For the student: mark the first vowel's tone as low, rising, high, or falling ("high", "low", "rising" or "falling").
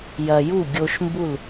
low